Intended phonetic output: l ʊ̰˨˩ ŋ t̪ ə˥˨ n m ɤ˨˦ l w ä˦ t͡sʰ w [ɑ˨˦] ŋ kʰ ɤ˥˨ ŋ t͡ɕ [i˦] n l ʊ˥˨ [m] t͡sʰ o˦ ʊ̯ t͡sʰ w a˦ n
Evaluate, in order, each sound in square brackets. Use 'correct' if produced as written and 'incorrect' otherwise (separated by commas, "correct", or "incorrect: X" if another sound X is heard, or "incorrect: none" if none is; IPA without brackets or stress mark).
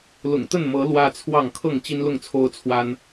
incorrect: ɑ˥˨, correct, incorrect: ŋ